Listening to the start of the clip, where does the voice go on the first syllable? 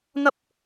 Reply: high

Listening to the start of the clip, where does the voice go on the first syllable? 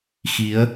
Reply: rising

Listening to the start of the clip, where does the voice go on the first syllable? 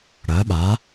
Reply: rising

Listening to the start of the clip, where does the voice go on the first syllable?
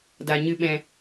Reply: low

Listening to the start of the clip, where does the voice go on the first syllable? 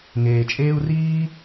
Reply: low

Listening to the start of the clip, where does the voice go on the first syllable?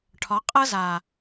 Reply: rising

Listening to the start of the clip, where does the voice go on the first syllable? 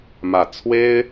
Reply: low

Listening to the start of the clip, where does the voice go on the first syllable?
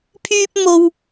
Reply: high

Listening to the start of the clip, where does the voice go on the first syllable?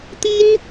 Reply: high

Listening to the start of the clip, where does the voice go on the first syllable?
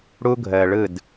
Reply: high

